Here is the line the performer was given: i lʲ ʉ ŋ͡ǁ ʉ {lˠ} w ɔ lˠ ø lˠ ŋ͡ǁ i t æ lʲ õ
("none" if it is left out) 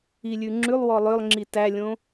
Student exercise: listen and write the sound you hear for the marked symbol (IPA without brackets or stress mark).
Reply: lˠ